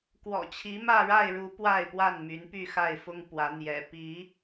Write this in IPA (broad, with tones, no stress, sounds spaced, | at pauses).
k w ɔ̰˨˩ t͡ɕʰ i˨˦ m ä˥˨ ɻ a˥˨ ɪ̯ ɻ u˨˦ p w a˥˨ ɪ̯ p w a˥˨ n m y˨˦ n p y˥˨ x a˥˨ ɪ̯ f ʊ˦ ŋ p w ä˨˦ n̪ j ɛ̰˨˩ p i˨˦